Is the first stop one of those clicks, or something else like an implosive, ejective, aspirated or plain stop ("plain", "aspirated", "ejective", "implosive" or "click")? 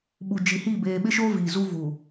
implosive